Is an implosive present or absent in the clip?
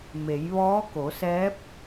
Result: absent